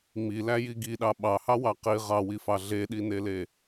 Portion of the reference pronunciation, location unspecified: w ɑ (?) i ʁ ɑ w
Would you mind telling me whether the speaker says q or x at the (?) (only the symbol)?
q